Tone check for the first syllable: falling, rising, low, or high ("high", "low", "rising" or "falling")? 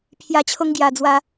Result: low